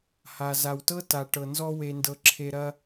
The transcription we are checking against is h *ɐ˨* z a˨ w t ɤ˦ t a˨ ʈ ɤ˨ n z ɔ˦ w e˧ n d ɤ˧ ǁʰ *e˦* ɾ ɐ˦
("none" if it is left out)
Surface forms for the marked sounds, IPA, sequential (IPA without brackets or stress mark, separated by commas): a˨, e˧